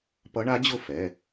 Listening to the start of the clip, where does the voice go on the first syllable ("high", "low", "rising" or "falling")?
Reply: rising